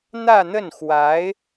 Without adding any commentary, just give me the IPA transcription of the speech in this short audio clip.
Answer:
n̪ ä˥˧ n̪ ə˥˩ n x w a˧˥ ɪ̯

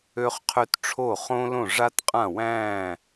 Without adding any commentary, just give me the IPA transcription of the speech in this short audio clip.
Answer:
ø˧ χ qʰ ø˧ t ʈ͡ʂʰ o˧˩ χ õ˧ l õ˧˩ ʐ a˧ t qʼ ã˧˩ w æ̃ː˧˩

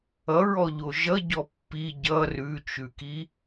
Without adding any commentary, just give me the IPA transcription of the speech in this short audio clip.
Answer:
ʌ ɹ ɔ ʎ o ʒ ʌ ɟ ɔ pː i ɟ ʌ r ʉ t͡ʃ ʉ k i

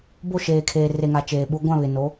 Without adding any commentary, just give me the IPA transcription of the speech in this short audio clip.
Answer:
b o˦˨ ʃ eː˨ kʰ eː˨ r e˨ ŋ a˨ t͡ʃ eː˨ ɓ u˨˦ ɡʷ ã˦˨ β ɪ˨ n o˨˦

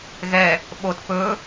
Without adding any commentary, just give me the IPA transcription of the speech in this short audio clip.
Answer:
ɣ ɛ | ɓ o t p ɵ

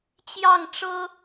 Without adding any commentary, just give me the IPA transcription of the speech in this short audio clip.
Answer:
t͡ɕ j ɑ˥˩ ŋ ʈ͡ʂ ɤ˥

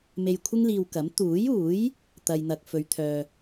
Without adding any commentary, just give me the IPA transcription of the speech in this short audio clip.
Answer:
m e˧ j kʷʰ ɪ˥ ŋ l iː˧ w k ɐ˨˥ m t̪ uː˨˥ j uː˨˥ j | t̪ ɐ˧ j n̪ ɐ˧ k̚ f ɵ˨˧ ɥ t̪ʰ œː˨

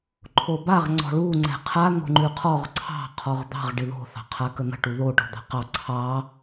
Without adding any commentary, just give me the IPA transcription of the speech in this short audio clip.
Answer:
ǃʰ o b a ʁ ŋ͡ǀ ɔ̤ ɭ u ŋ͡ǀ ɛ̤ qʰ a n̪ o̤ ŋ͡ǃ ʉ qʰ ɔ ʁ ǀʰ ɑ̤ qʰ ɔ ʁ d̪ ɑ̤ ʁ ɖ ɪ ð o̤ θ ɑ̤ qʰ a k ə n̪ ə̤ ʈ u ð o ʈ ɔ̤ d̪ ɑ̤ q ɑ ǀʰ ɑ

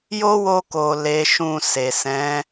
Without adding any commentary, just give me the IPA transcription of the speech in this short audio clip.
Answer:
j o˦ w o˧ k o˨ l e˨˦ ʃ ũ˧ s e˨ s ɛ̃˨˦

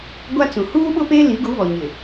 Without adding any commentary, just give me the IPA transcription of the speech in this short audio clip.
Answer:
ɡʷ a˦ t͡s ũ˨ h uː˦ ɓ ʊ˦ p e˦ l i˨˦ ɡ u˨˦ β ɔ˨ ɲ ɪ˨

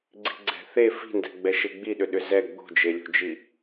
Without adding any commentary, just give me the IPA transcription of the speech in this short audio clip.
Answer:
ɡ͡ǀ i̤ ɡ͡ǀ ɛ̤ θ e f i̤ n d ɛ̤ ɡ͡b ɛ ʃ e ɡ͡b i ɗ ʏ ɗ ʏ z ɛ ɡ͡b o̤ d͡ʒ e lʲ o̤ d͡ʒ i

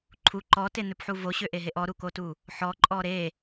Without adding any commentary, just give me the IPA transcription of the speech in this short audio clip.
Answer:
ǃʰ u ǃ ɔ t e n̪ ø p ħ u v o ɕ ø ʔ e ɦ e ʔ ɔ ɾ u k o t u | ħ ɔ ǃʼ ɔ ɾ e

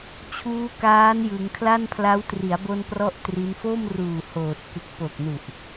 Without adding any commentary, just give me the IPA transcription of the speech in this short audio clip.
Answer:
t͡ɕʰ uː˦˥ k aː˦˥ n j ɯ˩˦ ŋ kʰ l a˥˩ n pʰ l a˦˥ w t r i˩˦ a̯ b o˧ n p r ɔ˥˩ ʔ t r i˦˥ n f o˥˩ m r uː˨˩ h oː˨˩ t̚ k ɯ˨˩ k̚ p o˨˩ k̚ n u˨˩ ʔ

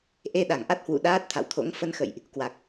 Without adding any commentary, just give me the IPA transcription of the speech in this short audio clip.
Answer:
ʔ e˧ ɗ a˧˩ ŋ ʔ a˦˥ t̚ h w ṵ˧˨ ɗ aː˦˥ t̚ t̪ʰ a̰˧˨ w t̪ʰ o̰˧˥ ŋ f ə˧ n x ə̰˧˨ j ʔ | k w a˨˩ k̚

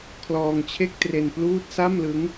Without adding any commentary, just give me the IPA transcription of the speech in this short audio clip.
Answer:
kʰ l ɔː˧ ŋ t͡ɕʰ e˥˩ k̚ t r e˧ n p l uː˥˩ t̚ s a˥˩ m l ɯ˦˥ ŋ

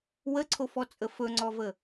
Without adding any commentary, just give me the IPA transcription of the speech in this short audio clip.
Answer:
w ə ǀʰ o f ɔ t͡sʼ ə f ɵ ŋ͡ǀ ɔ v ə

